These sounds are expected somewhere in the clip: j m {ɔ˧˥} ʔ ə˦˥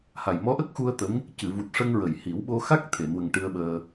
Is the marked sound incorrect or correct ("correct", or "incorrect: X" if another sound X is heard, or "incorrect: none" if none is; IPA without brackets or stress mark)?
correct